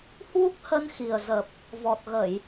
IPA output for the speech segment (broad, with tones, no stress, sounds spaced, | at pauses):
h w u˦˥ k̚ h ə˧ n x i˨˩ ə̯ z ə˨˩ p̚ | v ɔ˨˩ t̚ ɣ ə˧˩˨ j